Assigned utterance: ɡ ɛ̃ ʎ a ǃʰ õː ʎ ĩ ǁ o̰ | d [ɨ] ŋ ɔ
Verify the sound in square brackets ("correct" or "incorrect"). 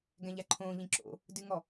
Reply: correct